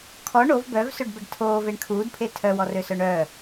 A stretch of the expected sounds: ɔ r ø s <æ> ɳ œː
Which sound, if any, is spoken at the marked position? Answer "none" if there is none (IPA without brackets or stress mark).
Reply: œ